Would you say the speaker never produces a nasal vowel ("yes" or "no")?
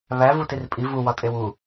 yes